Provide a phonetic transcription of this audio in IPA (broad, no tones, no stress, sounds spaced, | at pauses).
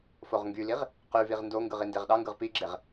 f o ʁ ŋ ɡ y l i ʁ | q y v i ʁ n d o ŋ ɡ ɯ ʁ i n d e ʁ ɗ ɑ ŋ ɡ ɯ ʁ p i ɡ͡ǁ e ʁ